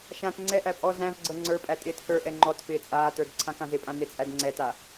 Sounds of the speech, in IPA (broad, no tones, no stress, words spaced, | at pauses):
ʃãt ŋ͡ǀɛʔæ pʼɔ zæ̃vɡ͡ǀɤ ŋ͡ǀə˞pʼæ tʼɪːtkə˞ʔɛ ŋ͡ǃɔtfɪː t͡sʼaːtə˞d ǀʰãkãzɪpʼã net͡sʼædŋ͡ǀɛta